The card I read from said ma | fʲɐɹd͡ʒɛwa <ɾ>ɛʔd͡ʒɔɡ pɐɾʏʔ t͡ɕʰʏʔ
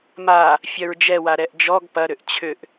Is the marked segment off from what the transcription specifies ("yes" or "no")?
no